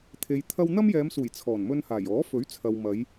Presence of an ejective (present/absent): absent